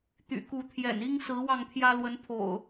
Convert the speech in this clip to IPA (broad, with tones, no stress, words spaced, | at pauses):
t̪y̰˨˩ku˨˦t̪ʰjɛ̰˨˩ni˦ŋ sɹ̩˨˦ wɑ˥˨ŋt̪ʰjä˦lwə˨˦n pʰo̰˨˩ʊ̯